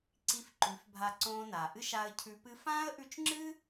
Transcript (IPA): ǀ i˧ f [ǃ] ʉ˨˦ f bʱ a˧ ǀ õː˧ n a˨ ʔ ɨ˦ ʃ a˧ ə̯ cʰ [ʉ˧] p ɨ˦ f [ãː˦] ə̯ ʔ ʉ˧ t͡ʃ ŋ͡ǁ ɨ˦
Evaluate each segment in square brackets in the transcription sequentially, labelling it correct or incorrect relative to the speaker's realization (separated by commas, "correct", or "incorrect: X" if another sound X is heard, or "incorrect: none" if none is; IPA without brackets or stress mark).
correct, correct, correct